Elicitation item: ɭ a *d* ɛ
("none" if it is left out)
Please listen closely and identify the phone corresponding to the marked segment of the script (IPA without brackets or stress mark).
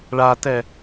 t